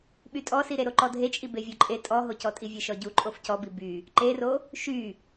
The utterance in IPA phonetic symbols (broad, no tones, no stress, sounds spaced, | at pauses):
ɓ y tʼ ɔ s i ɾ e ɾ o ǃ ɔ dʱ e t͡ʃʼ i b e vʲ o ǃʼ e tʼ ɔ ɦ o c ɔ tʼ i vʲ e ʃ ɔ ɟ u ǃʼ o f c ɔ b i b y | ǃ e r o | ʃ y